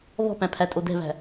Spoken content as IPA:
β ɔ̤ p æ̃ pʰ æ tʼ o d ɛ̤ β æ̤

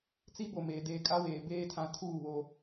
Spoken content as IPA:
t͡s i˦ b o˨ m eː˨ d eː˨ kʼ a˦ w eː˨ b eː˦ tʰ ã˦ tʰ uː˦˨ β o˦

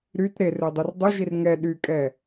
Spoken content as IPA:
ɾ y t ɾ e r ø dˤ o r dˤ œ ʒ i r ŋ ɛ ɗ y kʼ ɛ

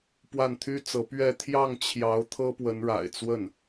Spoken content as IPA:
p w a˥˩ n t̪ʰ y˥ t͡s ɤ˧˥ p ɥ ɛ˥˧ t̪ʰ j ɑ˥˩ ŋ t͡ɕʰ j ɑ˧˥ ʊ̯ t̪ʰ ɤ˥ p w ə˧˥ n ɻ a̰˨˩ ɪ̯ t͡s w ə˥˩ n

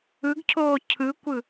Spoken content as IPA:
ɯ ɡ cʰ oː cʰ ɯ kʷ ɯ

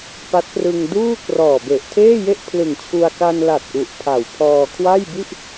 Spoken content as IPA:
p a˦˥ t̚ p r ɯ˧ ŋ d uː˥˩ k r ɔː˨˩ b e˨˩ ʔ tʰ eː˥˩ j e˥˩ ʔ pʰ l ɯ˨˩ ŋ t͡ɕʰ u˧ a̯ k a˧ n l a˨˩ t̚ ʔ u˨˩ ʔ pʰ a˨˩ w pʰ ɔː˧ kʰ w a˥˩ j b i˥˩ ʔ

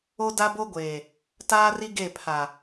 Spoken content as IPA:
o˦ d a˦ b o˦ ɡʷ eː˨ | t aː˦ r i˦ ɡ e˦˨ pʰ a˨

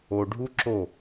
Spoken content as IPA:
o ɖʱ u ǁ o

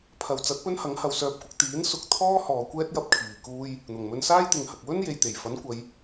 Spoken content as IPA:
pʰ ɐ˨ w t͡s ɐ˨˥ t̚ p ɵ˥ n h ɐ˨˥ ŋ h ɐ˨ w s œː˧ p̚ kʷ ɪ˧ k̚ t̪ iː˨˥ n s ʊ˨˥ k̚ t̪ʰ ɔː˥ h ɔː˨ kʷ ɛː˥ t̚ j ɐ˥ p̚ kʰ iː˨ k uː˥ j | n̪ ʊ˨˩ ŋ m ɵ˧ n s aː˥ j t̪ ɪ˨ ŋ h ɐ˨ k̚ w ɵ˥ n j e˨ j t̪ e˨˩ j f ɐ˨˥ n kʷ ɐ˨˧ j

